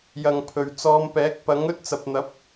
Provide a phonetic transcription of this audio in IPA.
j ɐ˨ ŋ pʰ ɵ˨˩ ɥ t͡s ɔː˨˧ m p ɛː˨˥ k̚ p ɐ˨˥ ŋ ɵ˥ t̚ t͡s ɐ˨ p̚ n̪ ɐ˨˥ p̚

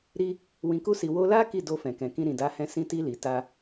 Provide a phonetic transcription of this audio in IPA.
ɾ i˧ | w ĩ˨ k u˧ s i˨ w o˧ l a˦ k i˦˨ d o˧ f ɛ̃˨ k ɛ̃˨ k ĩ˧ ɾ ĩ˨ d a˨˦ h ɛ̃˧ s ĩ˧ t i˧ l i˨ t a˧

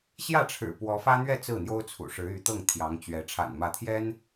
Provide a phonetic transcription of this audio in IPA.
ɕ j ä˥˩ ʈ͡ʂʰ ɻ̩˨˩ p w ɔ˧˥ f ä˥ n̪ ɥ ɛ˥˧ t͡s ɹ̩˥˩ n̪ j o˥ ʊ̯ t͡sʰ ṵ˨˩ ʂ ɻ̩˧˥ y˧˥ t̪ ɤ˥˩ ŋ t̪ʰ j ɑ˧˥ ŋ t͡ɕ ɥ ɛ˧˥ ʈ͡ʂʰ a̰˨˩ n m ä˧˥ t̪ʰ j ɛ˥ n

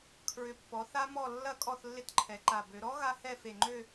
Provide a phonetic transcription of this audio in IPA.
kʰ ɹ ʏ˨˩ pː ɔ˩˧ θ a˦˥ m ɔ˦˨ lː ɐ˦˥ kʼ ɔ˦˨ θ lː ɪ˦˥ t ǃʰ ɛ˩˧ ǃ a˨˩ b ø˩˧ ɾ ɔ˦˥ ɣ a˦˥ h ɛ˦˨ f e˨˩ ŋ͡ǃ ø˦˨

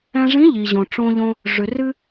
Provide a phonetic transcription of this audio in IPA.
ɛ̃˧ ʐ ĩ˧˥ ʎ i˩ ʑ õ˩ ʈ͡ʂ õ˧ ʎ õ˧ | ʐ ʏ˩ r ɨ˧

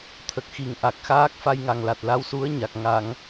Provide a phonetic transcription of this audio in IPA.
t̪ʰ ə˨˩ k̚ x i˨˩ ŋ ʔ a˨˩ k̚ x aː˦˥ k̚ f a˧ j ŋ a˨˩ ŋ l a˨˩ t̚ l a˧˥ w s u˧˥ ə̯ ɲ a˨˩ k̚ ŋ a˨˩˨ ŋ

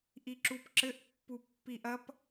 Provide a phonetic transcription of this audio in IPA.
ʔ i ǁ u p ǁ ɘ ʔ pː u pː i ʔ ɐ p

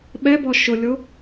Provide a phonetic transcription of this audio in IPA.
ɓ ɛ b ɔ ʃ ʊ lʲ o

